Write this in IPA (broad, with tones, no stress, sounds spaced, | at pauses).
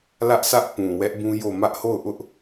l ä˦ ʔ sʰ ä˦ ʔ p ũ˨ w ɛ˦ ʔ b ũ˦ j o˦˨ m ä˦ ʔ h o˦˨ ʊ̯ ʔ ʊ˦ ʔ